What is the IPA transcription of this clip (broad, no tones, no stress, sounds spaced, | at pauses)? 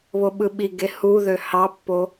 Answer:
β o ɓ ɯ ɓ i ɡ e h u ð ø h ɑ pː o